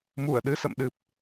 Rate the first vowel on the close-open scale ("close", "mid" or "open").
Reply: close